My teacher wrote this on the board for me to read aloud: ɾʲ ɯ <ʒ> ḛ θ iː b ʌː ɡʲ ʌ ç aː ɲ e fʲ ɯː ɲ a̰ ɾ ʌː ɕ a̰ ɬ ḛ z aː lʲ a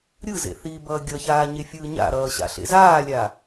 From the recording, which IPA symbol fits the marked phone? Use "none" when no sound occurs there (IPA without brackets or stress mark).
z